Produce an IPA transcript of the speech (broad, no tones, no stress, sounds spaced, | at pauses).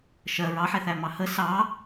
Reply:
ʃ ɜ ɹ ɑ ħ ɛ θ æ m ɑ h ə s ɑ